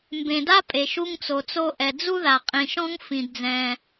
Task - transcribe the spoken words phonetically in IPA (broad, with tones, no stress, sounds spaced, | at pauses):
m b ẽ˩ d a˥ pʼ e˩ ʃ u˥ ŋ t͡s o˩ t͡s o˥ ʔ ɛ˩ d͡z u˥ ð a˩ qʼ ĩ˩ ʃ ɔ̃˥ ŋ f ĩ˩ d d͡z ɛ̃˩